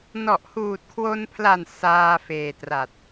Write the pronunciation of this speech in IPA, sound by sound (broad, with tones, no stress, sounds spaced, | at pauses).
n ɔ˨˩ ʔ h uː˨˩ t̚ kʰ w o˧ n pʰ l a˨˩ n s aː˧ f eː˨˩ t r a˨˩ t̚